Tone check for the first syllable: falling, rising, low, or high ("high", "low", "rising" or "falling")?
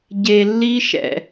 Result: low